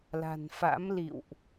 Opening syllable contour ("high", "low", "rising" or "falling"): low